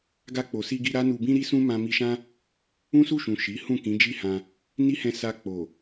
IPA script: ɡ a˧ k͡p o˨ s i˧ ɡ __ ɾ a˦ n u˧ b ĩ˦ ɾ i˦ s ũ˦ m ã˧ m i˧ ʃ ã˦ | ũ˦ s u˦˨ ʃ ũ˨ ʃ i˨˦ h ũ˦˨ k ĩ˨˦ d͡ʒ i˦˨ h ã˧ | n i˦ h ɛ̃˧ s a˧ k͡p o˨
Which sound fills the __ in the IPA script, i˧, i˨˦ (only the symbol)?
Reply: i˧